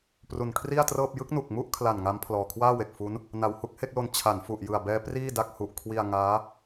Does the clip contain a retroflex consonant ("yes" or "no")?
no